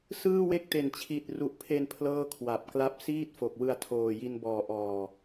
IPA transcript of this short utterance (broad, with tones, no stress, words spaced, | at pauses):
sɯː˥˩we˥˩k̚te˨˩n t͡ɕʰi˨˩t̚ru˨˩ʔpʰe˧n pʰlɤː˥˩kʰwa˨˩p̚ kla˦˥p̚siː˥˩t̚fo˨˩k̚ wɯ˧a̯tʰoː˨˩ji˧n bɔː˨˩ʔɔː˨˩